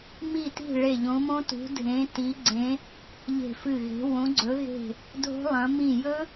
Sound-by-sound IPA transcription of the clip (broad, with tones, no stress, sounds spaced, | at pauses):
m i˧˩ t i̤˧˩ ɭ e˧˩ ʎ õ˨˦ m õ˦˥ t ṳ˨˦ dʱ ẽ˨˦ t i˨˦ ɡ͡ǀ ẽ˨˦ | ʎ e̤˧˩ f ɨ˧˩ ɣ e̤˨˦ w õ˨˦ ɡ͡ǀ ɵ˨˦ ɣ e̤˧˩ | dʱ o̤˦˥ lˠ ɐ̃˨˦ m ĩ˧˩ j ɵ˦˥